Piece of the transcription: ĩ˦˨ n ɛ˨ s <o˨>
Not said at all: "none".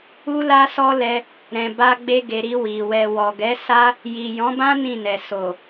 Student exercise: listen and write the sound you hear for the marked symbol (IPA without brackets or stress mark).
o˨